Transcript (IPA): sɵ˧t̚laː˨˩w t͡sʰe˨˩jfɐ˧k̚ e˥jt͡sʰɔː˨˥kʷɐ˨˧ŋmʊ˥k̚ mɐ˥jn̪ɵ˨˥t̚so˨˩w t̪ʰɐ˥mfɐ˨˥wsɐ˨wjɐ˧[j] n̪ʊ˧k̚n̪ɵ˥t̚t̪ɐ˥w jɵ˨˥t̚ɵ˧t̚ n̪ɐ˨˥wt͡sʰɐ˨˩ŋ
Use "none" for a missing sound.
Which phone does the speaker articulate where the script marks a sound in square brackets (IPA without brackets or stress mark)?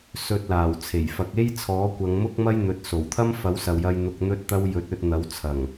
j